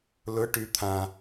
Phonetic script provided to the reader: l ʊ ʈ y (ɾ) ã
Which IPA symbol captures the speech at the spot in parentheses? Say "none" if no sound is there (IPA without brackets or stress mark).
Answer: t̪ʰ